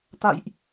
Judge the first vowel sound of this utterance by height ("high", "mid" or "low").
low